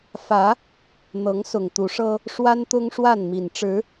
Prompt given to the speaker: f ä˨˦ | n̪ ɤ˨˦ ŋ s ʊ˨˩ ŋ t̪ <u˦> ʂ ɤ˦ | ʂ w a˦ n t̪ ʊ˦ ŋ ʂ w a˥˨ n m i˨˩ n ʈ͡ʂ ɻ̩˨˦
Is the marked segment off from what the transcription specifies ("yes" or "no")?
yes